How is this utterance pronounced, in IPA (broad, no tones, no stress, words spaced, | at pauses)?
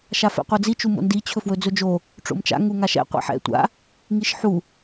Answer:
ʃafɛ̰qʷɤd͡zi t͡ʃumo̰ndi t͡ɕʰɵfwɵd͡zɵd͡ʒo | ʈ͡ʂo̰mt͡ʃa̰ ŋuŋaʃɛ̰ qʷɛ̰ħɛ̰ tʷa̰ | ŋiʃħu